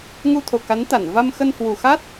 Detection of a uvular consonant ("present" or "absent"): absent